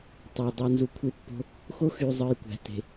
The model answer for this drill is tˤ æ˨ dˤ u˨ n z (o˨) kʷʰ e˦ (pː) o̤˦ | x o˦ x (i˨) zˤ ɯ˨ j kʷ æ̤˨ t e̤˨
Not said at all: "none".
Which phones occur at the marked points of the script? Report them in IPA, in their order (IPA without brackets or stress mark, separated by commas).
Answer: u˨, pː, y˨